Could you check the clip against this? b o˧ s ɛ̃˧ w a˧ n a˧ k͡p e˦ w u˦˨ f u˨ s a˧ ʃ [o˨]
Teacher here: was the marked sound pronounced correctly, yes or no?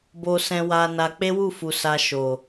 yes